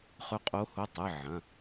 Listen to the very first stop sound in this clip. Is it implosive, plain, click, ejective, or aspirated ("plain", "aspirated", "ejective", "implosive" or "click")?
ejective